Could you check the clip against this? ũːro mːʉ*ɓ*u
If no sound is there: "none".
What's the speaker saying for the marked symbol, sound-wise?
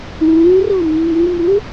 m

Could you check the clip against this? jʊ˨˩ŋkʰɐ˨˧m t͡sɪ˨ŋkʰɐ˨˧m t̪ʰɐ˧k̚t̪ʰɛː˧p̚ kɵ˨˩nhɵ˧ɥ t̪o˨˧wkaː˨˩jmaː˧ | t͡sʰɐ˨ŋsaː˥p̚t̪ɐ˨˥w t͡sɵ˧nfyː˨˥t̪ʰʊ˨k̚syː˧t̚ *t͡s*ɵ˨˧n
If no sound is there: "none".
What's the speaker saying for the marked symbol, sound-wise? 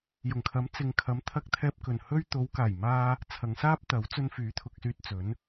t͡s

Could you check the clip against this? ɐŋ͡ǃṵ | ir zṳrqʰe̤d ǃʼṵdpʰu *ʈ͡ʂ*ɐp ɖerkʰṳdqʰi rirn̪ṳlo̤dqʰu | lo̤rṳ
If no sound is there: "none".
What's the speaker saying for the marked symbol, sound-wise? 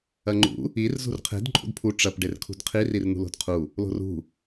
ʈ͡ʂ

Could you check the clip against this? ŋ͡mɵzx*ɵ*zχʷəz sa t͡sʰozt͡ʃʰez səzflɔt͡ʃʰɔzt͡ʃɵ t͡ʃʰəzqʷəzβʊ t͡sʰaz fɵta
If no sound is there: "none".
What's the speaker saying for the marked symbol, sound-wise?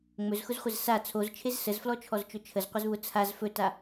ʊ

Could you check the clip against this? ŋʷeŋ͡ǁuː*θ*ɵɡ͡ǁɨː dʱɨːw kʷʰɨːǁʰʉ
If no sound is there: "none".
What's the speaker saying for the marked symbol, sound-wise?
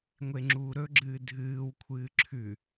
ɾ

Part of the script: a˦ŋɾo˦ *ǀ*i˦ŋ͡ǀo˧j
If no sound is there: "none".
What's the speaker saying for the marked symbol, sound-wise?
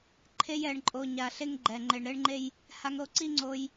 ǀ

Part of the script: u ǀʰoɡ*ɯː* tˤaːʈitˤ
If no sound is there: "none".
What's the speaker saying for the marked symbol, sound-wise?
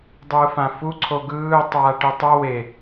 ɯː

